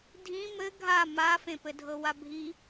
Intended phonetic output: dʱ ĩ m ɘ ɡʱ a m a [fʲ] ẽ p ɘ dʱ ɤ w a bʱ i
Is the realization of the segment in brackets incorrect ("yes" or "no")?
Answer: yes